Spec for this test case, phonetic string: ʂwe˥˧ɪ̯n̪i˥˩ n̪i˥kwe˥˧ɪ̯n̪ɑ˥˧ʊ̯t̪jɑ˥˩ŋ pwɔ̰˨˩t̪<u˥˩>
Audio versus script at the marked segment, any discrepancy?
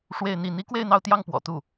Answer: no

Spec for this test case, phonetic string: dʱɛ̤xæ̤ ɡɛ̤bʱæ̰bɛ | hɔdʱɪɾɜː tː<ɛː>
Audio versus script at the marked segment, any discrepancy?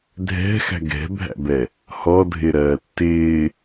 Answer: yes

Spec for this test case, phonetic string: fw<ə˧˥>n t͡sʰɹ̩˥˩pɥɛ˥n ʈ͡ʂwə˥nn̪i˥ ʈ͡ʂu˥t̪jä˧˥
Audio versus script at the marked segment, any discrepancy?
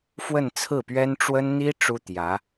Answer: yes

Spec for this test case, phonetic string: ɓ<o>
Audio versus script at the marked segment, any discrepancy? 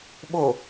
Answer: no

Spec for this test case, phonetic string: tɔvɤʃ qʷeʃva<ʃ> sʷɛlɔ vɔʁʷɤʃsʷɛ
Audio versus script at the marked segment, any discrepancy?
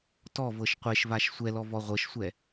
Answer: no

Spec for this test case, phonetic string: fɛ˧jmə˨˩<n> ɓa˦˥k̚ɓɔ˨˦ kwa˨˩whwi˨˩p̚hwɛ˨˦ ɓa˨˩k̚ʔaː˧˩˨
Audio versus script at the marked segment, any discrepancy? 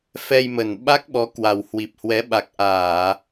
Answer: no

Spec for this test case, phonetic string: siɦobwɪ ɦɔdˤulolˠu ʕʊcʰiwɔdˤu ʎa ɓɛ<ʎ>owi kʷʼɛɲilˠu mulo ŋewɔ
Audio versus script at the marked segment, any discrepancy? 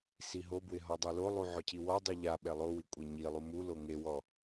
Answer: yes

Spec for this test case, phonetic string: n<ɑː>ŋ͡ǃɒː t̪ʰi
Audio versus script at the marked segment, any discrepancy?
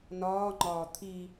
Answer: yes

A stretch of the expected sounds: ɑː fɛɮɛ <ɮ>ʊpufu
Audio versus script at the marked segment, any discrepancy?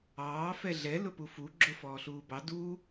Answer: yes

